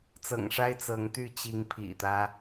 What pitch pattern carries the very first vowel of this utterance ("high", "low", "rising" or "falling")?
low